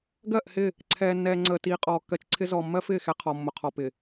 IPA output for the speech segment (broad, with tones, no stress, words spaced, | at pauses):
ɡɜ˦˨ʔhɪ˦˨ | ǀʰɛː˨nːɛː˨ ŋ͡ǀəː˨tiː˨ qʼɔː˨kːɜ˨t͡ʃǀʰɪ˦ zɔː˨mːɜ˦fɪː˦˨ xɛ˦qʰɔ˨ mːʊ˨qʰɔ˨ pɪ˨